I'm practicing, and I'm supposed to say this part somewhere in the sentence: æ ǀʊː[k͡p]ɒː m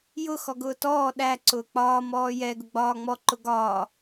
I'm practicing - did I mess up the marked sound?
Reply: no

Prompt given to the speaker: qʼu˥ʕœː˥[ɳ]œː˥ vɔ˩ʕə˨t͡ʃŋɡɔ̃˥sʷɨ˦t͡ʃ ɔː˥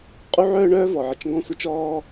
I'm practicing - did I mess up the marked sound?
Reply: no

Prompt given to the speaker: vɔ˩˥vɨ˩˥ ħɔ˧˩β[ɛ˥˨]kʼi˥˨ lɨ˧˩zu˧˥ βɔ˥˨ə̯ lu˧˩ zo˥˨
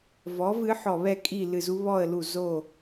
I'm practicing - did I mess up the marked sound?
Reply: no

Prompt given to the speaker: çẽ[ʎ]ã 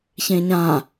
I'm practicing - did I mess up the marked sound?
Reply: yes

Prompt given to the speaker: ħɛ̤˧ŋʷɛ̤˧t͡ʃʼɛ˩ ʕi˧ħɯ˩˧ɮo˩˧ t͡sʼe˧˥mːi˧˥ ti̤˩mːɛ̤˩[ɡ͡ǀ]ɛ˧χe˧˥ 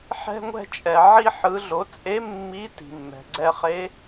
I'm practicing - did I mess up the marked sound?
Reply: no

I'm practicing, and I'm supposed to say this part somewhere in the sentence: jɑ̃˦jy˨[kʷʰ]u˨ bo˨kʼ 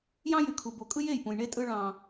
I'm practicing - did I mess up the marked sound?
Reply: yes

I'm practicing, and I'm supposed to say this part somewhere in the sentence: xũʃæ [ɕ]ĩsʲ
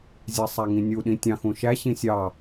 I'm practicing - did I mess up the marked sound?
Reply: no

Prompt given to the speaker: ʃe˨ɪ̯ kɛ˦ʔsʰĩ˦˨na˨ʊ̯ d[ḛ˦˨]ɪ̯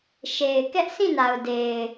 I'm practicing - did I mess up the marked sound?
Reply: yes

